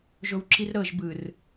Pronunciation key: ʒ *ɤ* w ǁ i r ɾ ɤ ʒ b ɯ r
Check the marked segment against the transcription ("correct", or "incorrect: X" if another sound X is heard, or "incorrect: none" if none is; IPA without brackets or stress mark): incorrect: o